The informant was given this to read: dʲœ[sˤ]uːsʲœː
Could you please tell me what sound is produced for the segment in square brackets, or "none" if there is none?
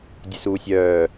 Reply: s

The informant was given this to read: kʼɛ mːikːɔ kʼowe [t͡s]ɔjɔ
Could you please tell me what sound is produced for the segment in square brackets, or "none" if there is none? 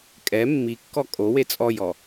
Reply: t͡sʼ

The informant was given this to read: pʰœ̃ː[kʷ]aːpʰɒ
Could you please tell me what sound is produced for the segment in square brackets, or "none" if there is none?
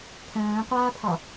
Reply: qʷ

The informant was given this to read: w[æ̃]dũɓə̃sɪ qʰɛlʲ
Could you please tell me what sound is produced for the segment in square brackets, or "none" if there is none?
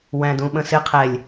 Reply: æ̃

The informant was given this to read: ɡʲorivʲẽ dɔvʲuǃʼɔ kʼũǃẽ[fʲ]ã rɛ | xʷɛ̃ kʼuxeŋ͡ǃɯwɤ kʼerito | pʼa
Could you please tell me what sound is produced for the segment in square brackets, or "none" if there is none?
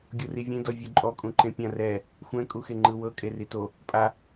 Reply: pʲ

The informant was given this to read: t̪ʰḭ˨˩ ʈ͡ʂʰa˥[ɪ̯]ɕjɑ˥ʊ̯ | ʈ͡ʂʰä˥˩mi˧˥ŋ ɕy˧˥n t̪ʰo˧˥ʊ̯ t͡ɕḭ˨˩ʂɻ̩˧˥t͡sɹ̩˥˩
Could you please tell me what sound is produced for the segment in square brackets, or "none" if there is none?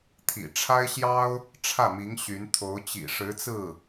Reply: ɪ̯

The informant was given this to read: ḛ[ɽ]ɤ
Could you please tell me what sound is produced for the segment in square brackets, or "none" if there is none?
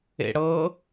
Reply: ɽ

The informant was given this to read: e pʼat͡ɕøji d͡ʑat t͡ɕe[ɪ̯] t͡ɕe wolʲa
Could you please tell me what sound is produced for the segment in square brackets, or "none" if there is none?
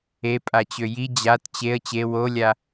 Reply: ə̯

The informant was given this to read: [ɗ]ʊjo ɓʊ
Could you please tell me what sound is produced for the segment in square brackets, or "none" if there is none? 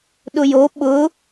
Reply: ɗ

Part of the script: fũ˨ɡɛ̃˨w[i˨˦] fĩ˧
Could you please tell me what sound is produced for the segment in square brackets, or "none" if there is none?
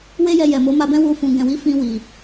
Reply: i˨˦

